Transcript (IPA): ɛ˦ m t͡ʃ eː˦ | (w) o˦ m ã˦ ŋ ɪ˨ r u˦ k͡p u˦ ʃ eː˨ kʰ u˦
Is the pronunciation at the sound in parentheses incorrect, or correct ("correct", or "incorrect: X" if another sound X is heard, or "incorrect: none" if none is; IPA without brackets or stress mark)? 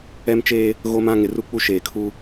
incorrect: ɣ